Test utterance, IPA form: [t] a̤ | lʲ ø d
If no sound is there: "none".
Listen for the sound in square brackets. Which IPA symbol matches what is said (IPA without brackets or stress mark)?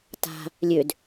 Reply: t